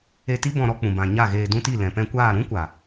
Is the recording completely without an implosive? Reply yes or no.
yes